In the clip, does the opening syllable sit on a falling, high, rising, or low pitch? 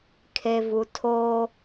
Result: low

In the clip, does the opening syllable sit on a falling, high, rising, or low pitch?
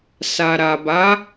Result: low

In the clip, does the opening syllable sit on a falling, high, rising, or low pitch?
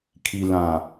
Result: low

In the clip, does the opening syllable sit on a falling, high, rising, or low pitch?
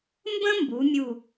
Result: high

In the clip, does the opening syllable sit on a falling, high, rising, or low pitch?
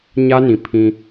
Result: high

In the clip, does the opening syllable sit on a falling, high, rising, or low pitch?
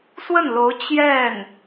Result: falling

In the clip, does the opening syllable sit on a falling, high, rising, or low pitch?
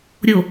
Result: low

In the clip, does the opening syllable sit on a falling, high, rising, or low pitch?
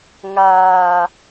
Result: low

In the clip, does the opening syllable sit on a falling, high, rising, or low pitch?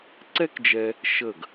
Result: high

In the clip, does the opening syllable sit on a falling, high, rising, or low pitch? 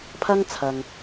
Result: high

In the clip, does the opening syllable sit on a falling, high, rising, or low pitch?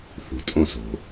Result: low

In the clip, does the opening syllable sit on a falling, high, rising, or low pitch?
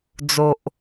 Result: low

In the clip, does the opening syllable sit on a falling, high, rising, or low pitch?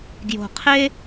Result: low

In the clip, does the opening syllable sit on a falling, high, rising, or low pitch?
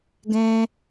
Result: high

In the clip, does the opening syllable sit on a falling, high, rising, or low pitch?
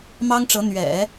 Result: high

